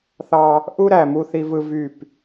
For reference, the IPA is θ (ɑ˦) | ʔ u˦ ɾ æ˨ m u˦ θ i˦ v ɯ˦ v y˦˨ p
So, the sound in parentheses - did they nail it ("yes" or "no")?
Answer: yes